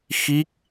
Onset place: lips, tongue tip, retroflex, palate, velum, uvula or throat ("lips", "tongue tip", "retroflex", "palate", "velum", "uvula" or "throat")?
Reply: velum